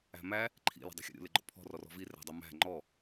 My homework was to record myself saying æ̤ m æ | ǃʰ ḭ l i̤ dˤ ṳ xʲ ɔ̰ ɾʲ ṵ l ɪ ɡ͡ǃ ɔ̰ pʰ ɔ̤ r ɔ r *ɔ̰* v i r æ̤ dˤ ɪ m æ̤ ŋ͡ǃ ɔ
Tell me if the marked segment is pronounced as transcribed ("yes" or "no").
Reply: no